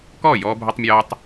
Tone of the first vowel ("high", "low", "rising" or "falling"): falling